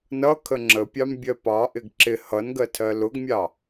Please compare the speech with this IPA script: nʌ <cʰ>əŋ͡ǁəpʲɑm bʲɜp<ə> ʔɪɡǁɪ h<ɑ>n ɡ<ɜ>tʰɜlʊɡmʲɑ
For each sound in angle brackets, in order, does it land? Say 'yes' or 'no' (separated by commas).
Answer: no, no, no, yes